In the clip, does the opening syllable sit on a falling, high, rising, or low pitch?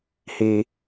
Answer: low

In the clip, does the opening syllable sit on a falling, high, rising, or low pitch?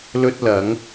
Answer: high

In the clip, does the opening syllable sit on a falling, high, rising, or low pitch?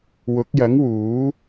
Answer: rising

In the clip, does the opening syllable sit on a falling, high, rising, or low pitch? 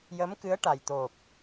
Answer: rising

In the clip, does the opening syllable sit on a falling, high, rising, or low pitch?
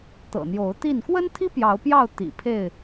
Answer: low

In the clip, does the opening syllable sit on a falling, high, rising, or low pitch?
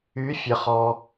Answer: rising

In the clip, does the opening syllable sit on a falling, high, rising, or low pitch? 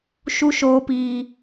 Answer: high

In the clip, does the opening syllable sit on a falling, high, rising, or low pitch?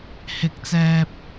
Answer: low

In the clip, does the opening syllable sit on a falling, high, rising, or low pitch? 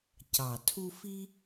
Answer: low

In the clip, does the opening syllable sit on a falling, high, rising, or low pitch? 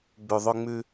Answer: low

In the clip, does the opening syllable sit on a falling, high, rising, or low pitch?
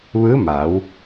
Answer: rising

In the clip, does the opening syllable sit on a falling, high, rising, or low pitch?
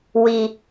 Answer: low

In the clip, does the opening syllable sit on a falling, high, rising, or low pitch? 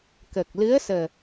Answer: low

